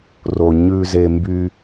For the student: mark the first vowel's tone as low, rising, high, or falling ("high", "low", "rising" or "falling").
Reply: low